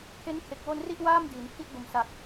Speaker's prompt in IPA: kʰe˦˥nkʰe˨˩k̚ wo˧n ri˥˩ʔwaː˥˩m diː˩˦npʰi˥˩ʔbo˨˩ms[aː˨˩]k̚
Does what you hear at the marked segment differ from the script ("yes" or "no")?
yes